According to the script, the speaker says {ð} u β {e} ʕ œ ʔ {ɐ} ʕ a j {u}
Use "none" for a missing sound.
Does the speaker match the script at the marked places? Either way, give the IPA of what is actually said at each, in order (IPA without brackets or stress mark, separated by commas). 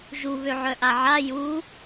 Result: ʒ, ø, a, u